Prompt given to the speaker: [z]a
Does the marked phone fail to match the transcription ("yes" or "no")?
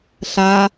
yes